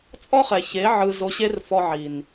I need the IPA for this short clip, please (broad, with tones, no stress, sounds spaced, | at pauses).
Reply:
t͡sʼ ɔ˦ χ ɛ˨ ç e˨˦ ʕ ɯ˧ z o˧ ɕ e˦ r f ɔ˧ ʕ i˨ n